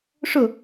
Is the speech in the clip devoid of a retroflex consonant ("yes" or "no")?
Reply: no